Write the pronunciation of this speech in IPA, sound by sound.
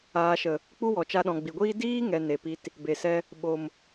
aː˨ ʃ ə˨ | k͡p u˦ w ɔ˨ t͡ʃ a˧ ɗ ɔ̃˨ ɡ͡b i˨ ɡʷ iː˦ d iː˦ ŋ ɛ˨ n e˨ p i˧ t | b e˨ s ɛ˧ | ɓ o˨ m

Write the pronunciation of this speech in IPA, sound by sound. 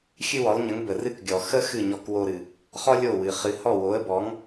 xʲ ɨ˥ w ɔ˩˥ lˠ ɲ ə˩˥ ŋ b ə˩ r ɨ˥ k ɡʲ ɔ˩ x ə˥ x ɨ˥˩ ɲ ɔ˧ k w o˧ ɾ ɨ˩ | χ ɔ˥ lʲ o˥˩ w ɨ˩ χ ɨ˩ h ɔ˥˩ w o˩˥ ə̯ b ɔ˩˥ ŋ

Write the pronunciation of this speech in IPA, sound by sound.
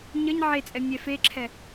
ɲ ə ɲ ʕ e t͡sʼ ɛ mʲ ɛ f e ǁʰ ɛ

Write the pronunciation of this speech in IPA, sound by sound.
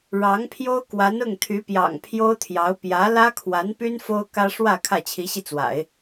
ɻ ɑ˧˥ ŋ pʰ j o˥ ʊ̯ k w a˧˥ n ʊ˥˩ ŋ t̪ʰ y˧˥ p j ɑ̰˨˩ ŋ pʰ j o˥ ʊ̯ t̪ʰ j ɑ˧˥ ʊ̯ p j ä˧˥ l ä˥ kʰ w a˧˥ n p y˥ n f o˥ ʊ̯ k ä˥ ʂ w ä˥˧ kʰ ä˥˩ t͡ɕʰ i˧˥ ɕ i˧ t͡s w a̰˨˩˦ ɪ̯

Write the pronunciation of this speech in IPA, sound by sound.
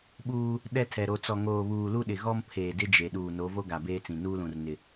ɓ uː˦ | ɗ ɛ˦ tʰ ɛ˨ ɾ o˨ t͡s ɔ˨ ŋ oː˨ β uː˨ l u˦ ɗ ɪ˨ ɣ ɔ˦ m pʰ eː˨ d ɪ˦ d͡ʒ e˨ ɗ uː˨ n o˨˦ v o˦ ɡ a˨ b eː˦ t͡s ĩ˨ n uː˦ l ũ˨ r n ɪ˨

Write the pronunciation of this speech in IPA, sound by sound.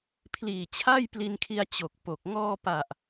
pʰ l iː˨˩ t͡ɕʰ a˥˩ j p l i˧ n kʰ i˧ a̯ t͡ɕ o˨˩ k̚ p o˨˩ k̚ ŋ ɔː˧ p a˨˩ ʔ

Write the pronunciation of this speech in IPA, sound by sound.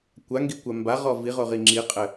kʷ a ŋ ɡ i kʷ a m b a ʁ ɔ v i ʁ o ʁ i ŋ͡ǁ i qʼ ɘ

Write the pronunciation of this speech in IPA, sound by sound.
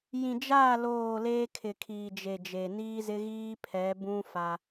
j ĩ˨ d͡ʒ aː˦˨ l oː˦˨ l eː˦ kʰ ɪ˨ kʰ iː˨ d͡ʒ e˨ d͡ʒ e˨ n iː˦ z ɪ˦ ɣ iː˦ pʰ ɛ˨˦ b ũ˦ f a˦

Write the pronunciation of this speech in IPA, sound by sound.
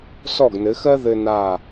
s ɔ˥˩ ɡ n ɘ˩˥ x ɜ˥ ð ɘ˧ n aː˥˩

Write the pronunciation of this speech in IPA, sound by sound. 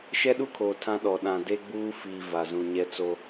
ʃ ɛ˦ ɗ u˦ kʰ oː˨ tʰ ã˦ ɗ ɔ˨ ɗ ã˨ d e˦ ɡ͡b uː˦ f iː˨ v a˨ z ũ˨ ɲ ɛ˦ t͡s o˦

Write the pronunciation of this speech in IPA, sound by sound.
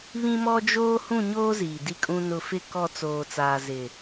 β ĩ˦ m ɔ˦ d͡ʒ oː˦ h ũ˦˨ ɲ oː˦ z iː˨ d i˦ kʼ ũ˦ n ʊ˨ f ɪ˦˨ k ɔ˦˨ t͡s oː˨ t͡s aː˨ z ɪ˨

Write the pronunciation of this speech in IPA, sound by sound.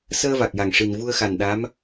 s əː˧ v a˨˩ k̚ j a˨˩ ŋ ʂ i˨˩ n v u˧ ə̯ x a˨˩ n ɗ a˧˥ m

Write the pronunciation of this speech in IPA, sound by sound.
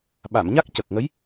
ɓ a˨˩˨ m ɲ a˦˥ k̚ c ə˨˩ k̚ ŋ ə˧˥ j

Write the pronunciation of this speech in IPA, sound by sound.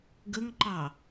ɡ ə ŋ ǃ ɑ

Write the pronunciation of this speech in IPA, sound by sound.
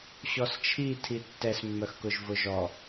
ɕ ɔ s t͡ʃʰ i tʰ i tː ɛ s mː œ x k ʊ ʒ v ʊ ʒ ɔ

